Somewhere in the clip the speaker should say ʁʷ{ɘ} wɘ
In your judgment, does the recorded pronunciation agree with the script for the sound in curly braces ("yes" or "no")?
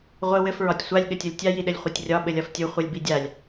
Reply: yes